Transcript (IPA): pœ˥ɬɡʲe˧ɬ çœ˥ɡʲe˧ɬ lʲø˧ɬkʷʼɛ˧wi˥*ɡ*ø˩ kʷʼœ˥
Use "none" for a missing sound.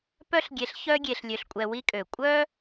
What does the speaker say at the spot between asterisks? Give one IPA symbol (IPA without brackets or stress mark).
kʼ